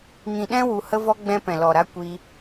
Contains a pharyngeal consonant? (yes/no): no